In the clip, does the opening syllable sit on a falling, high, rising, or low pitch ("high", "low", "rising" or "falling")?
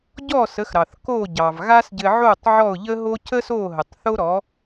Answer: falling